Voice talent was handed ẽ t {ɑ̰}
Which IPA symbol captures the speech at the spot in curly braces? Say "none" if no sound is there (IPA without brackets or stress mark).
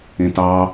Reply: ɑ